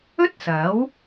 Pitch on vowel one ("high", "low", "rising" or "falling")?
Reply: high